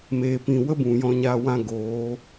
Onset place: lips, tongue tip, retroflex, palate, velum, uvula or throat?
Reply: lips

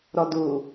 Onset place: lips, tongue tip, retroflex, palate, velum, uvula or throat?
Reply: tongue tip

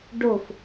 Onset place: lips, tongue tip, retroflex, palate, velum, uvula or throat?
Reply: retroflex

